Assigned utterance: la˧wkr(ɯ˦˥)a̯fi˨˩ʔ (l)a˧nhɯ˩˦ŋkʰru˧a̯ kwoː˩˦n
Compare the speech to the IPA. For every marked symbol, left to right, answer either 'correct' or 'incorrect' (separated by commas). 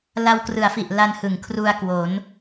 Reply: incorrect, correct